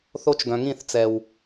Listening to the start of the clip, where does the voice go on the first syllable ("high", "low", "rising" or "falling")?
high